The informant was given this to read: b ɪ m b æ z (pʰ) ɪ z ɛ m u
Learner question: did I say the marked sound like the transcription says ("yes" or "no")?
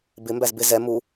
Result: no